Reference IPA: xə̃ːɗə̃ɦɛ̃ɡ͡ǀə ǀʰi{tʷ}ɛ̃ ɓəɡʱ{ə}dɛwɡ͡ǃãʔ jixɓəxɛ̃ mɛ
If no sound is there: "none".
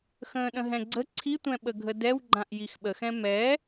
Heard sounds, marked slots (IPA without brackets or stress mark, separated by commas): tʷ, ə